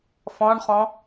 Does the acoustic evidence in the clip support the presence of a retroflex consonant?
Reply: yes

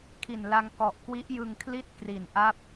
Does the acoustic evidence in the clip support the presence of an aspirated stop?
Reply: yes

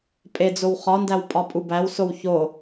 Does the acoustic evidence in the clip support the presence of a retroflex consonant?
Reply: no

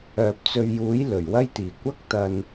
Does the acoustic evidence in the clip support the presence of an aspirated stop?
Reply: no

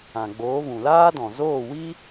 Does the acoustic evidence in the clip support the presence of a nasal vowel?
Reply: yes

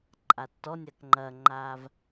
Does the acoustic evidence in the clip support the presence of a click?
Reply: yes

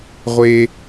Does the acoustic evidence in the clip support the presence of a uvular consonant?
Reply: yes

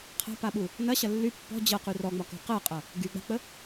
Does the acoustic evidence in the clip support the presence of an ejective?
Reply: yes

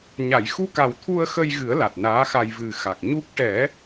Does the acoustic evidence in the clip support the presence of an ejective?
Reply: no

